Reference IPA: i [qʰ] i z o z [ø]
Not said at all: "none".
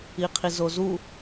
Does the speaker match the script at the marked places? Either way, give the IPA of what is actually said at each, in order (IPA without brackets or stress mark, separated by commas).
qʰ, u